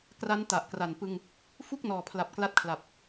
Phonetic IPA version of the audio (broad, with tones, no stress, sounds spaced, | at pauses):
k r a˦˥ n t a˨˩ ʔ k r a˨˩ n p ɯ˧ ŋ | f u˥˩ k̚ n ɔː˨˩ pʰ l a˨˩ p̚ k l a˦˥ t̚ kʰ l a˨˩ p̚